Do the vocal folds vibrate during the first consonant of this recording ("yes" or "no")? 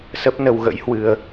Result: no